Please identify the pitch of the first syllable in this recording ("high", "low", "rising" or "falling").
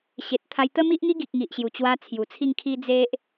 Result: low